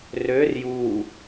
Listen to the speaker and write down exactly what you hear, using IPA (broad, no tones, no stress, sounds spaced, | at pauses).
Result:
r ø r j u